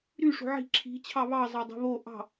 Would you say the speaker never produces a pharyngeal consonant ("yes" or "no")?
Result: no